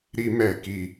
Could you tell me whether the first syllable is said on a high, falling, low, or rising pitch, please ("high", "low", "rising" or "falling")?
high